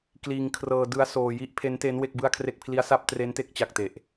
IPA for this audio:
k l iː˧ ŋ kʰ r ɤː˧ d ɯ˦˥ a̯ s oː˧ j i˦˥ ʔ pʰ e˦˥ n t e˦˥ n w e˥˩ k̚ b ɯ˥˩ a̯ kʰ r e˥˩ k̚ pʰ l i˦˥ a̯ s a˥˩ p̚ t r e˦˥ n t e˥˩ k̚ t͡ɕ a˨˩ k̚ t e˨˩ ʔ

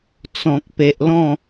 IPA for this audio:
t͡s ɔ̃˨ k̚ p e˨ ʔ l ɔ̃˥˧

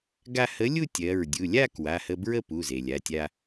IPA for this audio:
ɡ a˧ h ə˨˥ lʲ u˥˧ tʲ ɜ˩˧˩ ɹ dʲ u˩˧˩ lʲ a˥˧ k w a˩˧˩ h ə˧ b ɹ ə˥˧ p u˩˧˩ z e˩ lʲ a˩˧˩ tʲ a˧

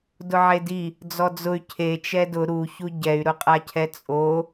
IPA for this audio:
d ʊ ʕ e d i | d͡z ɔ d͡z ʊ y̯ cʰ e t͡ʃ ɛ d ʊ ɾ u ç u ɟ ɛ y̯ ɾ ʊ qʼ a cʰ ɛ t͡sʼ o

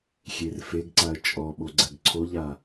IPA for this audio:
xʲ e r f e ɡ ǀ a ə̯ t͡ʃʼ ɔ ɓ o ɡ͡ǀ ɛ ɡ ǀʰ o ʎ a

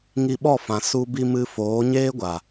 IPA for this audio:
ŋ i˧ ɓ ɔ˦˨ f ã˨ s u˧ b i˧ m ɨ˧ f oː˨˦ ɲ eː˦ ɡʷ a˨

